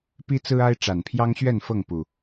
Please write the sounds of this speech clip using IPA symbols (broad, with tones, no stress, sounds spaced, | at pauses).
p i˦ t͡s ɹ̩˦ a˦ ɪ̯ ʈ͡ʂ a˨˩ n pʰ j ɑ˦ ŋ ɕ ɥ ɛ˥˨ n f ɤ˥˨ ŋ p u˨˩